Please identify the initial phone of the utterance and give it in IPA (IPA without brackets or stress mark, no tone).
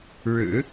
ɻ